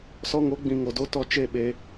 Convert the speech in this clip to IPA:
s ɔ˧ ŋ o˨˦ ɡ͡b ĩ˨ ŋ o˨ d o˦ t ɔ˧ t͡ʃ e˦˨ ɓ e˧

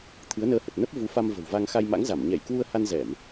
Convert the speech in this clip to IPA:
t̪ʰ ɨ˨˦ ə̯ n əː˧ h ə˨˩ t̚ n ə˦˥ p̚ v u˨˦ f a˧ m v ə̤˨˩ w v a˧ ŋ x a˧ j m a̰˧˥ ŋ z a˧˩ m ɲ ɛ˧˩ j k w u˧ ə̯ h a˧ n z ɛ˧˩˨ m

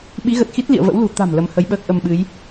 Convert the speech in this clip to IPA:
ɓ i˨˦ ɣ ə˨˩ t̚ x i˦˥ t̚ l ḭ˧˨ ə̯ v ə̰˧˥ w l ṳ˨˩ t̪ a̤˨˩ m l ə˨˦ m h ə˨˦ j ɓ əː˦˥ k̚ ʔ ə˧ m ɓ ɨ˨˦ j

